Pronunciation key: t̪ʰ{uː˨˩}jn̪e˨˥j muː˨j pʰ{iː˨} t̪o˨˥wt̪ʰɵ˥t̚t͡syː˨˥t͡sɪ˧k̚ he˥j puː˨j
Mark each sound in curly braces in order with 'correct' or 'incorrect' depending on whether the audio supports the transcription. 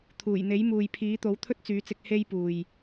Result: correct, incorrect: iː˨˥

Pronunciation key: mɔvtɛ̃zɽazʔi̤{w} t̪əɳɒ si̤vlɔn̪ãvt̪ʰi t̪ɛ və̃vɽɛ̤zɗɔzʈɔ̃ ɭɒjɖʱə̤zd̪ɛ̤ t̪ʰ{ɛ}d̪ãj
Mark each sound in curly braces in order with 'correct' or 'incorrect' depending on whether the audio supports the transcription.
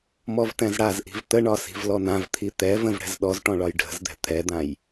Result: incorrect: v, correct

